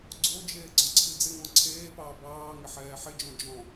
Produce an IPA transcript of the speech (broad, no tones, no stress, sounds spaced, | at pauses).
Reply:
ɡ͡ǀ o d͡ʒ eː ɡ͡ǀ ɔ̃ ǀʰ i d͡z ɪ ŋ ɔ̃ ǀʰ eː p ɑː b ɑː ŋ ɪ ħ ɛː ħ ɪ d͡ʒ ɔ̃ d͡ʒ ɔ̃